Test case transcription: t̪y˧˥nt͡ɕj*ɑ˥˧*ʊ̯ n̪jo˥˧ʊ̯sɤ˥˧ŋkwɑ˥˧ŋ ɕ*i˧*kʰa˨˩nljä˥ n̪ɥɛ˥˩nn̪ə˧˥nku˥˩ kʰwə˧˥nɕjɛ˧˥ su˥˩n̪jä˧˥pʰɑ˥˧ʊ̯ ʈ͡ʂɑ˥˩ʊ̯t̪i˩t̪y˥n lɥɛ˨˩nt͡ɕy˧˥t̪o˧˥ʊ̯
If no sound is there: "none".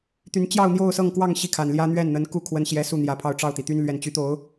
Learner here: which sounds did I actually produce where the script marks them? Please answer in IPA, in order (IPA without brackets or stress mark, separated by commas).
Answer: ɑ˥˧, i˥˩